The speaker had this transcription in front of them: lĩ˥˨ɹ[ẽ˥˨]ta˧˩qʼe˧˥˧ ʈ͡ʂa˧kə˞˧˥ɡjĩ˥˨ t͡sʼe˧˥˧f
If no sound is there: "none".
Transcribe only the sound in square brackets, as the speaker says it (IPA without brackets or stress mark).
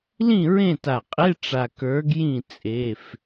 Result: ẽ˥˨